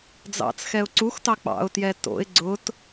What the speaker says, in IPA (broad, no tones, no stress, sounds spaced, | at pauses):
d͡z ɑ̰ t͡s x ɛ ʊ̯ ǀ u x t ɑ k͡p ɑ̰ ʊ̯ t j ɛ t o̰ ɪ̯ ɡ͡ǀ ʊ t